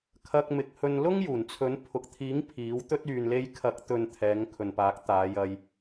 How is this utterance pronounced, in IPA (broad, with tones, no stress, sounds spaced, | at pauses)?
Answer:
kʰ ɐ˧ k̚ m ɪ˨˥ k̚ h ɵ˧ n l ʊ˥ ŋ j uː˨˩ n t͡sʰ ɵ˨˥ n pʰ ʊ˨ k̚ t̪ʰ iː˨˥ ŋ pʰ iː˨˥ w t̪ ɵ˥ t̚ yː˨ n l e˧ j kʰ ɐ˨˥ k̚ t̪ ɵ˨ n t̪ʰ ɛː˨˧ ŋ kʰ ɵ˨ n p aː˨˥ k̚ t̪ aː˨˧ j ɐ˧ j